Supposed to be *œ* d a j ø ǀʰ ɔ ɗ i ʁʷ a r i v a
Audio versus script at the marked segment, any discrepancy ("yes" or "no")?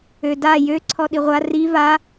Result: yes